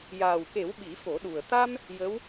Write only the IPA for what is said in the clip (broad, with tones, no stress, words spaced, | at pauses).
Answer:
jaː˨˩wke˨˩˦w ɓi˨˩˦fo˨˩˦ɗu˨˩ə̯ t̪a˧m | jə˧˥w